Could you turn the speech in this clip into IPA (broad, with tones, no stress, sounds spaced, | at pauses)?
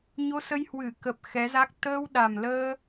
ɲ o˧ s ə˧ j h w ɨ˧˩ k ə˨˩ p̚ x ɛ˨˦ z a˦˥ k̚ t̪ əː˧ w ɗ a˨˩ m l əː˧